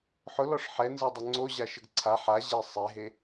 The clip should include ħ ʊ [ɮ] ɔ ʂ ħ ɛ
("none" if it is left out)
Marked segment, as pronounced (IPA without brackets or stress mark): l